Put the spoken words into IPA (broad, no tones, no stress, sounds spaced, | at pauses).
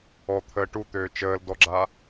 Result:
ɔ t̪ʰ əː ʈ u t̪ øː t͡ʃ əː l d ɔ ɡ͡ǁ a